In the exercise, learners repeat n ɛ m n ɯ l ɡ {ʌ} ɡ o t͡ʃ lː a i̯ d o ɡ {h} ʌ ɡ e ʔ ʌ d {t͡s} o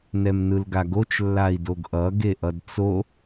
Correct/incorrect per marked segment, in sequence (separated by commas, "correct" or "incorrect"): incorrect, incorrect, correct